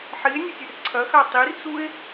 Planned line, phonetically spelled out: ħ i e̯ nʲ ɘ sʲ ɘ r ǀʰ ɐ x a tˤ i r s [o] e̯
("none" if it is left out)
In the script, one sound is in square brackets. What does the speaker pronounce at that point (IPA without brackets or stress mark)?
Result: u